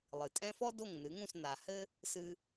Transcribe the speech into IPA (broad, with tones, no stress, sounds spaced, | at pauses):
lˠ ɨ˩ tʼ ɛ̃˥ f ɔ˥ d o˥˩ ŋ n ɨ˩˥ ŋ ũ˥˩ s n a˩ h ɘ˥ | s ɨ˧